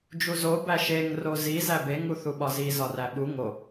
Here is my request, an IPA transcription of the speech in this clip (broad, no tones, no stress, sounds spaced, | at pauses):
d͡ʒ u z o b æ ʃ e ŋ r o z i z æ b e ŋ u θ u ɓ ɒ z i z ɒ r æ ɓ u ŋ o